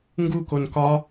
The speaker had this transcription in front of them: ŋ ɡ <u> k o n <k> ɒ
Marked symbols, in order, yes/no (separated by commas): yes, yes